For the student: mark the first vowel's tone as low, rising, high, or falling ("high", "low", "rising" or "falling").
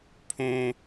high